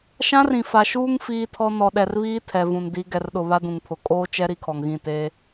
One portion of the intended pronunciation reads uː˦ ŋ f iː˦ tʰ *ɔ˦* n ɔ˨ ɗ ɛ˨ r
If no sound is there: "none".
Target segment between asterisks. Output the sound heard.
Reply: ɔ˦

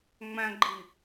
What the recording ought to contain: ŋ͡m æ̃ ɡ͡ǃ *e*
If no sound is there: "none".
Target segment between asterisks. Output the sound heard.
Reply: i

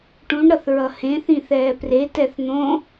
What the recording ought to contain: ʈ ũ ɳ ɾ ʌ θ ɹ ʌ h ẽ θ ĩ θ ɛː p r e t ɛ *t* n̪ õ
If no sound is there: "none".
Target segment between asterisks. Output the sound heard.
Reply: θ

